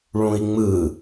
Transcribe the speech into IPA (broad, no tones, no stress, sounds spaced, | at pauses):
ɭ ũ i̯ ŋ͡m ɯ